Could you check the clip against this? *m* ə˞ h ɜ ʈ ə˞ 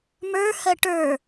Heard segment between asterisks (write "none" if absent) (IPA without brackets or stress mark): m